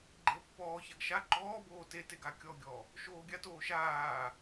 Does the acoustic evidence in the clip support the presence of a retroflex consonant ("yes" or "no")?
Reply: no